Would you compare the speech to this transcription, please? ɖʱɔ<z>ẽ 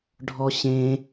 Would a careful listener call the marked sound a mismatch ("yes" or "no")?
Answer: yes